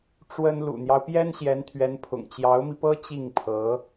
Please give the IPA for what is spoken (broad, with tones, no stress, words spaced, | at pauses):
ʈ͡ʂwə˥n lṵ˨˩n̪jɑ˦ʊ̯pjɛ˥n ɕjɛ˧˥nt̪ʰɥɛ˧˥npʰʊ̰˨˩ŋ t͡ɕjɑ˧˥ʊ̯mi˧pɤ˥ t͡ɕi˥˩ŋpʰɤ˧˥